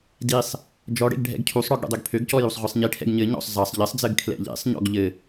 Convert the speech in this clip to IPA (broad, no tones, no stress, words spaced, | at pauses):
disˤ | d͡ʒɔɽḛɡ ɖʱɛ̰ɡcʰusˤɽɔɡ ɽṵdˤøɡpʰøɡcɔ jusˤʁʷisˤɲiʈʰɛ̰ɡ ɲɘ ɲɔ̰sˤ zɑsˤ ʎɘsˤd͡zɘɡ kʰlɛ̰ʎḛsˤɲɔ̰ɡ ʎɘ